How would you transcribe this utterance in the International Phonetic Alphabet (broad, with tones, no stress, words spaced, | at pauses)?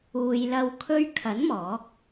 uː˨jlɐ˧w kʰɵ˧ɥkʰɐ˨˥n mɔː˨˥k̚